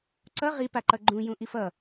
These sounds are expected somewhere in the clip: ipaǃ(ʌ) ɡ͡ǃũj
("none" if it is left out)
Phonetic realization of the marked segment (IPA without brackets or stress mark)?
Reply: ʌ